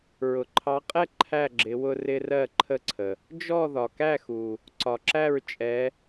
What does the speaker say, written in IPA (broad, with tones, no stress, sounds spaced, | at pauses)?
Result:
ɹ ʊ˩ ǃʰ ɑ˨˦ qʼ ɛ˥˨ ǃʰ æ˥˨ ɡ͡ǁ ɪ˨˦ w ʊ˦ r ɪ˦ r ɜ˥˨ ǃʰ ə˥˨ ǀʰ ə˩ | d͡ʒ ɔ˥˨ ð ɒ˩ k æ˥˨ x u˩ | ǀ ɒ˩ ǁ æ˥˨ ɹ t͡ʃʼ ɛ˨˦